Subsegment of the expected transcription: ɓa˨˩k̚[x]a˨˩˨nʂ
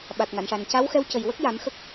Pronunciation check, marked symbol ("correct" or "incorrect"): incorrect